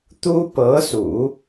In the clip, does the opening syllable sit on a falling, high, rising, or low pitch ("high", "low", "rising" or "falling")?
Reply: high